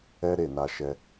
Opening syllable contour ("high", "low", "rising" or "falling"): high